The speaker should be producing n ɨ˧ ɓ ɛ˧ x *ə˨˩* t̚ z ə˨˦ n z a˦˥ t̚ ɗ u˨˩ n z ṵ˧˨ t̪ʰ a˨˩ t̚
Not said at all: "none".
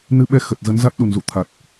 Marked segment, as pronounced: ə˨˩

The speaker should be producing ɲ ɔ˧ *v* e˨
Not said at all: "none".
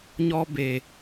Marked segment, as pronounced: b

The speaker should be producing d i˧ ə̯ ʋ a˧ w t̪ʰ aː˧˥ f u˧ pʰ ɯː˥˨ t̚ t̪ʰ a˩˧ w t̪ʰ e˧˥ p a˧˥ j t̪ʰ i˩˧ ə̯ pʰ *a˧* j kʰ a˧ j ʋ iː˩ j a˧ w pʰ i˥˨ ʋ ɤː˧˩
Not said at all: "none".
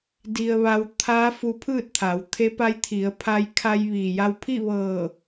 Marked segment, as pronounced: a˧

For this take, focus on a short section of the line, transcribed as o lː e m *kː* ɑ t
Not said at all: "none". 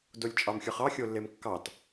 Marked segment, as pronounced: kː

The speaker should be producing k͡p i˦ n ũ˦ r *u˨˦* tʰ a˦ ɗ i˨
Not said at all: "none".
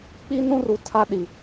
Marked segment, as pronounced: u˨˦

